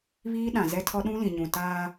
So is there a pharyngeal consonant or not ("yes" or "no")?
no